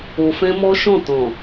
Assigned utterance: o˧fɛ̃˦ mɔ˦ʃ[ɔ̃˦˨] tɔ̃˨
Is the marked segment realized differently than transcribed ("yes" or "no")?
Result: no